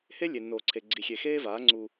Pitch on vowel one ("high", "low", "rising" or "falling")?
high